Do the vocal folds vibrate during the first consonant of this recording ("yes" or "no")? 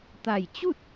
no